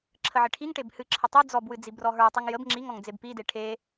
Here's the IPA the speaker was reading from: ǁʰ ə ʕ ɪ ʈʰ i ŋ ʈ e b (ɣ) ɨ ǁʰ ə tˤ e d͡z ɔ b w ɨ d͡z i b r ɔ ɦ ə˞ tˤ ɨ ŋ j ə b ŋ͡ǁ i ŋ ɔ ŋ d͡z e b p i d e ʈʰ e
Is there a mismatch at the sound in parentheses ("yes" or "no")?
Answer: yes